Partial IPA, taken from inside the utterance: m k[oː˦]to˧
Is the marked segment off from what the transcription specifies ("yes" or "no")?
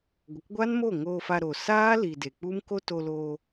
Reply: yes